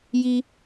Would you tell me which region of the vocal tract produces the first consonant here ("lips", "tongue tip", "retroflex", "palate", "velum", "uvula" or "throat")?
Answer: palate